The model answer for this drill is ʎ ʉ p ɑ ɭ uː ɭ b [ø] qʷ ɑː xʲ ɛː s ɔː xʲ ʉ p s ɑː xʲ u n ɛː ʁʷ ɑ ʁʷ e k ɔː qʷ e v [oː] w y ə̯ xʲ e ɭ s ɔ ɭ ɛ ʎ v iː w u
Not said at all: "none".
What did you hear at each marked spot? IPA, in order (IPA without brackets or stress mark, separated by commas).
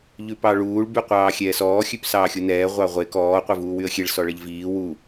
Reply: y, uː